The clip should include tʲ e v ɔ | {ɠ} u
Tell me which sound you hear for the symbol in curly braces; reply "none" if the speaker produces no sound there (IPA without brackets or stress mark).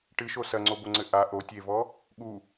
ɠ